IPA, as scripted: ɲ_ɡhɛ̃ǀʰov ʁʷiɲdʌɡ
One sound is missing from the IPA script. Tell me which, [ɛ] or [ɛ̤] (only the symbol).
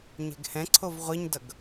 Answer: ɛ̤